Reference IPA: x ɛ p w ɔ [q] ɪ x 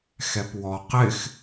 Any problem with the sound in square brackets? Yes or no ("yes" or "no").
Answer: no